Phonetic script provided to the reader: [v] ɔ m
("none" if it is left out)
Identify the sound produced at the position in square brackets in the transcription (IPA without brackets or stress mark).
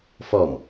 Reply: f